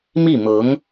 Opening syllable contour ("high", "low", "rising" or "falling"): falling